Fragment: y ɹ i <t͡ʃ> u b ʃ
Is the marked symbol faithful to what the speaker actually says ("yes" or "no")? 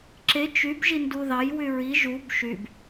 no